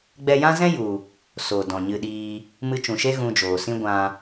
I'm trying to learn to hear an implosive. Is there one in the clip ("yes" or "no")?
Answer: yes